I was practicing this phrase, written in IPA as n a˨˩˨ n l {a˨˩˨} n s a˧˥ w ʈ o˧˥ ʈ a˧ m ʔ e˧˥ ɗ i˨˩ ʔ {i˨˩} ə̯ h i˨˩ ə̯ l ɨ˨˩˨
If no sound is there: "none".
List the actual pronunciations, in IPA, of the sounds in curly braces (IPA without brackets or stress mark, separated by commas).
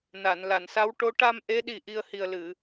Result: a˨˩˨, i˧